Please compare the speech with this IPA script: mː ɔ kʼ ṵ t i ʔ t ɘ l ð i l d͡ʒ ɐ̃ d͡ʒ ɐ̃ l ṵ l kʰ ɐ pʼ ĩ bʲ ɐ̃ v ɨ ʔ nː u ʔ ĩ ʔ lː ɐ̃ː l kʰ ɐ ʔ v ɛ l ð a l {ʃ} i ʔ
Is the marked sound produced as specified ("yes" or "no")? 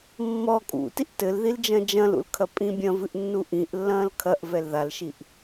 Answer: yes